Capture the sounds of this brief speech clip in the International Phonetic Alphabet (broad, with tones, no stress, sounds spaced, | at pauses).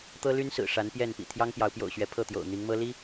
t̪ ɤ˦ l y˦ n s ɹ̩˨˩ ʂ a˨˦ n p j ɛ˥˨ n p ḭ˨˩ t̪ʰ j ɑ˦ ŋ p j ɑ˨˦ ʊ̯ p j o̰˨˩ ʊ̯ ɕ ɥ ɛ˨˦ pʰ ɤ˥˨ t̪ j o̰˨˩ ʊ̯ n̪ i˨˦ ŋ m ɤ˦ l i˦